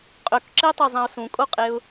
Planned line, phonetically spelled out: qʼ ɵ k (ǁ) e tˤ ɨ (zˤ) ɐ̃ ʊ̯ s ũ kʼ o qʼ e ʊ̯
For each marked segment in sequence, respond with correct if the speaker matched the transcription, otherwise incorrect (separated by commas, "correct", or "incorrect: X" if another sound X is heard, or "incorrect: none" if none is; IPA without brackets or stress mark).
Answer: correct, correct